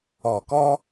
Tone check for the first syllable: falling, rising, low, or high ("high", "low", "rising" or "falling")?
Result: low